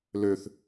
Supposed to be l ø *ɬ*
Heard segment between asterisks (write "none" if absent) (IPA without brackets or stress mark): θ